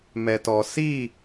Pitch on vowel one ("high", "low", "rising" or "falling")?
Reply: low